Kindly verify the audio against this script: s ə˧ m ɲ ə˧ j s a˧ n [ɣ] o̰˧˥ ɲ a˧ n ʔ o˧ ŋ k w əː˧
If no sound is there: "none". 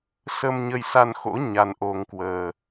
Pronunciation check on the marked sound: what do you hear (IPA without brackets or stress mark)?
x